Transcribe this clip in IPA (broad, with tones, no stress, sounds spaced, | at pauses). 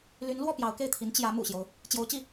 l y˧˥ n l w ɔ˥˩ p j ɑ˧˥ ʊ̯ k e˥˩ ɪ̯ t̪ʰ i˧˥ n t͡ɕ j ä˧˥ m ṵ˨˩ ɕ j o˦ ʊ̯ | t͡ɕ j o˧˥ ʊ̯ t͡ɕ i˥˩